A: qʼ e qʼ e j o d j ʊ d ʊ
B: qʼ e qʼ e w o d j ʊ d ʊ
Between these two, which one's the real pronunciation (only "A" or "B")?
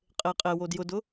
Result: B